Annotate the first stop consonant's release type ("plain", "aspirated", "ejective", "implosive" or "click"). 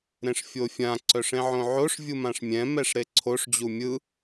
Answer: click